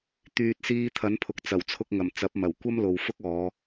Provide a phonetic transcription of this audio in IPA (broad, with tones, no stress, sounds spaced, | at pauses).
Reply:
t̪ yː˨ t̚ s iː˧ t̪ʰ ɐ˨˥ n pʰ ʊ˨ k̚ t͡s ɐ˨˩ w t͡sʰ ʊ˧ k̚ ŋ ɐ˨˩ m t͡s ɐ˨˥ p̚ m ɐ˨˩ w kʷ ɐ˥ m l o˨ w f ʊ˥ k̚ ɔː˨˧